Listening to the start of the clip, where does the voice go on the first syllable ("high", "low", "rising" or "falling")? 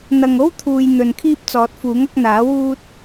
low